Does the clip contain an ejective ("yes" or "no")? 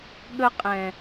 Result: yes